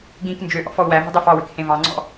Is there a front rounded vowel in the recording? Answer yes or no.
yes